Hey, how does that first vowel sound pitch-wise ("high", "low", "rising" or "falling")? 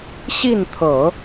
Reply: falling